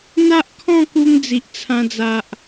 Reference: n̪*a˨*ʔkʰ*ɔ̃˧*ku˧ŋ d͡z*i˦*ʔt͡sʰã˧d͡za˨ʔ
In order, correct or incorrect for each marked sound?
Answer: incorrect: a˦, incorrect: ɔ̃˥˧, incorrect: i˨

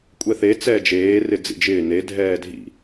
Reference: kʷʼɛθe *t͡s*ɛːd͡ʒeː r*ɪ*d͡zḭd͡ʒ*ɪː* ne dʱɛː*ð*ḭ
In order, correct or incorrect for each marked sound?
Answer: correct, correct, correct, incorrect: dʱ

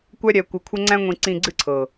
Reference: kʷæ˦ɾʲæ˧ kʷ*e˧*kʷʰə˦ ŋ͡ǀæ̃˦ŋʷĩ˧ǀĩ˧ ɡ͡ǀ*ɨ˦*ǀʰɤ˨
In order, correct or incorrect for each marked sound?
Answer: incorrect: ɘ˧, correct

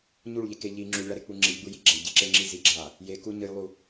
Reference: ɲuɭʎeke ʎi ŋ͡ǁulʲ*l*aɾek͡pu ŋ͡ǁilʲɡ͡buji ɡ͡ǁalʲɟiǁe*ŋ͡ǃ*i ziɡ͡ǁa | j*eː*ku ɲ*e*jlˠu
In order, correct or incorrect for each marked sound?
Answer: incorrect: ɭ, incorrect: ŋ͡ǁ, incorrect: e, incorrect: ɨ

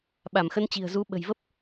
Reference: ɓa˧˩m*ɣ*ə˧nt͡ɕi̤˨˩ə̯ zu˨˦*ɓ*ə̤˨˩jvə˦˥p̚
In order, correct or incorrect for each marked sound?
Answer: incorrect: x, correct

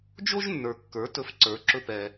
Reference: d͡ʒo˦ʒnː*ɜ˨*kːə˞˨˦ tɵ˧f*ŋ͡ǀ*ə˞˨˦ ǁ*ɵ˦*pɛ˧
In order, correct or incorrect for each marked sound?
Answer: incorrect: ə˞˨, incorrect: ǀ, correct

